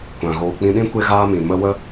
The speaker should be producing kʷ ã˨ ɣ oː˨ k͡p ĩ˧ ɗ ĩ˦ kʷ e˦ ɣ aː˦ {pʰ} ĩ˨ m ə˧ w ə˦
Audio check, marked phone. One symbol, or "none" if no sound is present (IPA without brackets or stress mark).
m